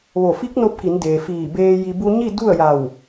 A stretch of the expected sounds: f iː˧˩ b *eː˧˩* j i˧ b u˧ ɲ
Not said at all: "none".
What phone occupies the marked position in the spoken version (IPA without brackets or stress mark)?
eː˧